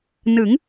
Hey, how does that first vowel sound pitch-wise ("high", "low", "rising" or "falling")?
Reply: rising